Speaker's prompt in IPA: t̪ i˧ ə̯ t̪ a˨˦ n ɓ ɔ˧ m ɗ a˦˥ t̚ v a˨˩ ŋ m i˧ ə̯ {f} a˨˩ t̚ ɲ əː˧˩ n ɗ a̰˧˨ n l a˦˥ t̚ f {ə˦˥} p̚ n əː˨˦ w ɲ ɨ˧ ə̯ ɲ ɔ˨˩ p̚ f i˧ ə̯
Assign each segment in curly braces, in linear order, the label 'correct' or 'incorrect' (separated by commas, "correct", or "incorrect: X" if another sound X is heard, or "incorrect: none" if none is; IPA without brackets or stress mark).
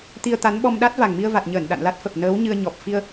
incorrect: v, incorrect: ə˨˩